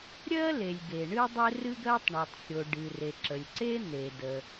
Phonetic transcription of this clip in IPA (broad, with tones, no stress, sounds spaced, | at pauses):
ɾʲ ɜ˥ l e˩ lʲ ɡ e˩ ɳ ɨ˥ dˤ e˥ r ɨ˥ ɡ ɜ˥ tˤ ɳ ɜ˩ tˤ xʲ o˩ ɖ ɨ˩ r e˩ ǁ ə˩ lʲ ǀ e˥ n̪ e˩ d ə˩